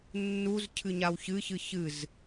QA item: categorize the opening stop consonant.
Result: aspirated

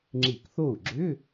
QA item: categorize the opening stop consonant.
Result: click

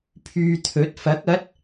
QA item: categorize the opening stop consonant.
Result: aspirated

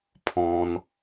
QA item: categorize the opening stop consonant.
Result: aspirated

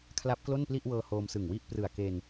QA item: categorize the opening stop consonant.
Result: aspirated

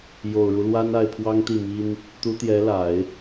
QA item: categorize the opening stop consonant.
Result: aspirated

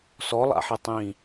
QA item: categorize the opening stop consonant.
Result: plain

